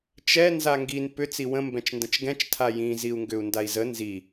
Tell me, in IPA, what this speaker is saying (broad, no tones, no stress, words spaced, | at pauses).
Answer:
t͡ʃɛ nzaŋɡin pʏ t͡siwə̃ mbɛ̃t͡ʃndə̃t͡ʃɡɛ̃t͡ʃ tʰajĩ ziu̯ŋɡʏu̯ndai̯zə nzi